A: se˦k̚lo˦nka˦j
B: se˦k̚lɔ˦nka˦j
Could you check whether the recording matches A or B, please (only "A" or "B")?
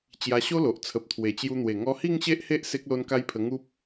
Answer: A